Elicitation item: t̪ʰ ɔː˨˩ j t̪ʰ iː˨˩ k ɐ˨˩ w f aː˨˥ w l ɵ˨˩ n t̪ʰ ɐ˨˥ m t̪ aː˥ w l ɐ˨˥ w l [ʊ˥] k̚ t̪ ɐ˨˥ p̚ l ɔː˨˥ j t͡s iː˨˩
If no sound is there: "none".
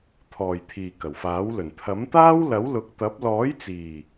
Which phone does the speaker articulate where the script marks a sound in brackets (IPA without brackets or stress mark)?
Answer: ʊ˨